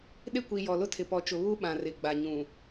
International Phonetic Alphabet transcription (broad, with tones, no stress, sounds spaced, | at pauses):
ɗ ɪ˦˨ kʷ i˨ j ɔ˨ l ʊ˦ tʰ ɪ˨ p ɔ˨ t͡ʃ ʊ˨ β u˦ ɓ ã˨ r ɪ˨ ɡ͡b a˨ ɲ ũ˨